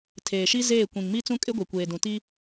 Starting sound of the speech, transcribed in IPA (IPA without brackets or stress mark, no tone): tʰ